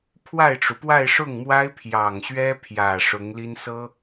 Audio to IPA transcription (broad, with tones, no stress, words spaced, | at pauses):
pʰwa˥˩ɪ̯ʈ͡ʂu˩ pwa˥˧ɪ̯ʂʊ˥˩ŋmwa˥ɪ̯ pʰjɑ˨˩ŋɕɥɛ˥pʰjä˨˩ ʂʊ˧˥ŋli˥n sɤ˥